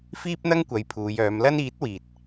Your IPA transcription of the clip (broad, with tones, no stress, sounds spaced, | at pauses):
f iː˥ p̚ n̪ ɐ˥ ŋ kʷ ɐ˨˧ j pʰ uː˨˧ j œː˨˧ m l ɐ˥ n iː˨˥ t̚ w iː˨ t̚